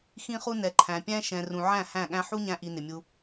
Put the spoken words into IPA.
x ĩ˦ χ u˦ n ɛ˨ ǃʰ æ̃˨ pʲ æ̃˦ ʃ ɛ̃˨ r ũ˨ ʕ æ̃˦˨ h æ̃˦˨ ɠ æ̃˦ ħ u˦ ɲ æ̃˧ ʔ i˨ n ɪ˨ mʲ u˧

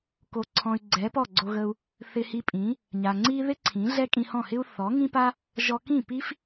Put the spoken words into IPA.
k o˨ ǀʰ ɔ̃˨ y̯ ɡ͡ǀ ɛ˨˦ p ɔ˦˨ ɡ͡ǀ o˧ ɣ ə˧ u̯ | θ ɪ˧ h i˧ pʼ ĩ˨˦ | ɲ a˨ ŋ͡ǀ i˦ ð ɪ˦ ǀʰ ĩ˨˦ ɮ ɛ˦ kʼ ĩ˧ h ɔ̃˦˨ h ɪ˦ u̯ θ ɔ˨˦ ŋ ĩ˦ p a˦ | ʒ ɔ˧ k ĩ˦˨ p i˦ f

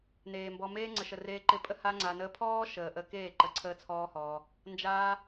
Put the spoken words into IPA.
n eː˨ m b ɔ˧ m eː˦ ŋ͡ǀ ə˨ ʃ ə˨ r eː˧ ǃ ɪ˧ pʼ ə˦ h a˦ ŋ͡ǀ a˧ n əː˧ pʰ ɔː˦ ʃ əː˨ ʔ əː˧ k eː˦˨ ǃ ə˧ ǀʰ əː˦ t͡sʰ ɔː˦ h ɔː˧ | n d͡ʒ aː˦

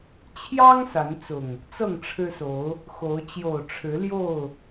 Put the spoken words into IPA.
t͡ɕʰ j ɑ˦ ŋ s a˨˦ n t͡s ʊ˨˩ ŋ | t͡s ɤ˥˨ ŋ ʈ͡ʂʰ ɻ̩˦ s o˨˦ ʊ̯ | x o˨˦ ʊ̯ t͡ɕ j o˨˩ ʊ̯ ʈ͡ʂʰ ɻ̩˨˦ l j o˥˨ ʊ̯

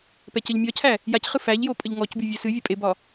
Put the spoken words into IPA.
p ɛ c ə ʎ mʲ ɒ cʰ æ | j a c χ ɨ f æ ʎ j o pʼ ə ʎ ŋ ɔ c b y vʲ ɛ s ɨ vʲ ə pʼ e b ɒ

